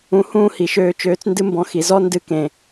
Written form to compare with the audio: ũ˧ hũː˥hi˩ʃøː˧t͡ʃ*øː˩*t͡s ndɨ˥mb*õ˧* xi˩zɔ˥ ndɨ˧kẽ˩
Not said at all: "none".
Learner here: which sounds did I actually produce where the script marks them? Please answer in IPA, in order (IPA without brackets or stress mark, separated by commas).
øː˧, ɔ̃˧